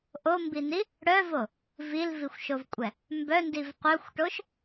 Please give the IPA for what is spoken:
ʔ o m b i n i | ɽ œ v o | v i l v i xʷ ʃ o v kʷʼ ɛ | m b œ n d i v qʷ œ xʷ ʈ o ʃ

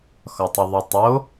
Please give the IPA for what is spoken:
x ɒ tˤ i ðˤ o tˤ o

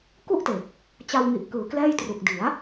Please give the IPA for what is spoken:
k u˥˩ ʔ t e˨˩ k̚ | t͡ɕ a˧ w ŋ i˨˩ ʔ k ɯː˨˩ k l ɛː˥˩ j t r u˨˩ k̚ d i˩˦ a̯

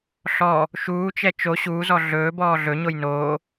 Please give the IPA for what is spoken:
ɬ ɔ | ʃ uː t͡ʃ ɛ t͡ʃ o ɕ uː z ɔ ɮ ɵː b ɔː ɮ ɵ ɲ o j n oː

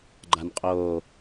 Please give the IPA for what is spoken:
ɡ͡ǃ a n qʼ oː

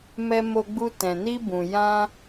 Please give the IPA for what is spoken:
m ɛ˧ m o˧ ɡ͡b u˧ t ɛ̃˨ n i˧ b ũ˨ j ã˧

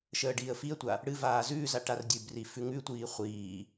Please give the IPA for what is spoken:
ʃ əː ɖ iː ə̯ f i ə̯ tʷ a | ɽ ɨ v aː z ʉː z a ʈ a r dʲ ʉ b r i f ʉ ŋ ʉ tʷ iː χʷ iː

